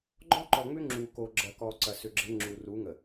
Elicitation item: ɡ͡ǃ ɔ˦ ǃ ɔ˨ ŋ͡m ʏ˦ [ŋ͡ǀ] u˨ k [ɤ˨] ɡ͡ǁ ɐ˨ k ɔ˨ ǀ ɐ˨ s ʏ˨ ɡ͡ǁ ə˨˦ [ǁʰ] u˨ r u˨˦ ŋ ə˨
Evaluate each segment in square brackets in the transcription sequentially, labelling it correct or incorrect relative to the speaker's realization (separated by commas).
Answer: incorrect, incorrect, incorrect